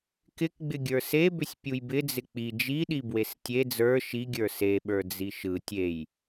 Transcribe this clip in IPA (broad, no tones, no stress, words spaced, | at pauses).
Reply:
kɪkɡ͡bɪɡʲə˞ sebʏsʲpʲuj bɪd͡zɪ k͡pi d͡ʒiɗibwes tʲe d͡zə˞ ʃiɡʲə˞ seɓə˞d͡zi ʃɯ tʲej